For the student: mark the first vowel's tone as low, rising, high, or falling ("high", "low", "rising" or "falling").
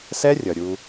high